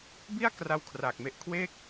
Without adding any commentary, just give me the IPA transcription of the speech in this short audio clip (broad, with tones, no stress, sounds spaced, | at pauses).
b i˥˩ a̯ k r a˧ w kʰ r aː˨˩ k̚ m e˦˥ ʔ kʰ w e˥˩ k̚